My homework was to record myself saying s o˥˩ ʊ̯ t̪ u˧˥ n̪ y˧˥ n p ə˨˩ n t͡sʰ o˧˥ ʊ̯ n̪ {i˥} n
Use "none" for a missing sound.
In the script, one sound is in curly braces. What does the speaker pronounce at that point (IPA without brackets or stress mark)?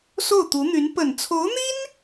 i˥